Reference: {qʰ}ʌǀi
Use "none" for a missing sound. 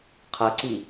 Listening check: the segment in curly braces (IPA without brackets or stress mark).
qʰ